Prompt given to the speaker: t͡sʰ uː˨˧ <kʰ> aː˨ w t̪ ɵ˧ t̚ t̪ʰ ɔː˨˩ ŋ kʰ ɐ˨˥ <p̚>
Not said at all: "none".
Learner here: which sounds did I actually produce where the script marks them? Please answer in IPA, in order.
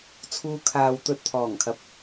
kʰ, p̚

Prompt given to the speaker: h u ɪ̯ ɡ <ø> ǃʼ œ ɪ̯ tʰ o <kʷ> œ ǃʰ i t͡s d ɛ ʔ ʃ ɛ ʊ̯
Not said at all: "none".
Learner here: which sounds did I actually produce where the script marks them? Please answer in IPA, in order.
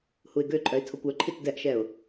ø, kʷ

